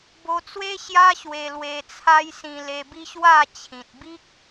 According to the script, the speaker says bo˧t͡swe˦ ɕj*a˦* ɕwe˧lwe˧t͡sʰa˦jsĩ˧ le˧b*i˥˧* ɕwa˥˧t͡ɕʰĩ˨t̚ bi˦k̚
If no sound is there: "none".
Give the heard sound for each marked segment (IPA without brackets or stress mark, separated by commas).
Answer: a˦, i˦